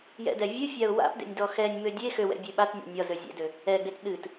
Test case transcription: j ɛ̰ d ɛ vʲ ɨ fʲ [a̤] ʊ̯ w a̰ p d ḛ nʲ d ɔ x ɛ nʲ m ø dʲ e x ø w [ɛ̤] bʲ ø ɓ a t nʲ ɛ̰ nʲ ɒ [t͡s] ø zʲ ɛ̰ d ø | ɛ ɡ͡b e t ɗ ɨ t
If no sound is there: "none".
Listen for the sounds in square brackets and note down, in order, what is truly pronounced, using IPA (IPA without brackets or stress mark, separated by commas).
a, ɛ̰, z